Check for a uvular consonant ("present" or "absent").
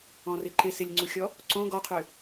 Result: present